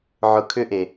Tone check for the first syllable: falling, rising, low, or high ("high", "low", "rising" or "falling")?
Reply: low